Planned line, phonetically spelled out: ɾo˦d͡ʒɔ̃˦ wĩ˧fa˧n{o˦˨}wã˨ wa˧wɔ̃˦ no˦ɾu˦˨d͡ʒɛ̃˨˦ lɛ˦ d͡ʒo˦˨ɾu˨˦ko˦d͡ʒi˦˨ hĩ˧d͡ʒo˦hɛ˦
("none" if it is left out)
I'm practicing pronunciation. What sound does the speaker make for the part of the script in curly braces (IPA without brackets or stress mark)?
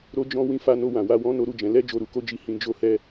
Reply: o˧